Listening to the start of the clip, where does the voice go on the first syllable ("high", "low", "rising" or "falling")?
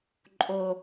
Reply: low